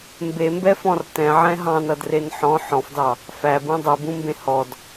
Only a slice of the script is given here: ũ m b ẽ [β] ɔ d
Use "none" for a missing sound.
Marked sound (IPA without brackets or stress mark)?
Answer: h